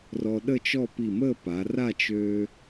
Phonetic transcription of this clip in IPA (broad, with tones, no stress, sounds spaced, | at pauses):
r ɔ˧ ɗ ə˥˧ t͡ʃ ɔ˥˧ p i˧˩ m ə˥˧ p a˩˧ r a˥˧ t͡ʃ øː˧